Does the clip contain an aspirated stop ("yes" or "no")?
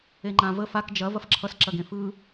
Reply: yes